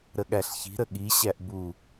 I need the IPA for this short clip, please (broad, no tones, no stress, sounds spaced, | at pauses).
ɾ ə ɠ æ ɬ ç i̤ ɾ ə ɠ i ɕ æ ʔ b u